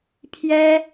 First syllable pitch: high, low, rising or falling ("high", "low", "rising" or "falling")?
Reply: high